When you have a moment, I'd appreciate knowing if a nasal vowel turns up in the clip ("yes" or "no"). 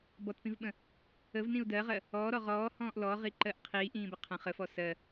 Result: yes